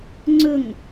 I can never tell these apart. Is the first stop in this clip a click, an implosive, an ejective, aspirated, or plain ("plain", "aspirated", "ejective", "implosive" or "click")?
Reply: click